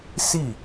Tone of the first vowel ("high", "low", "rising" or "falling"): falling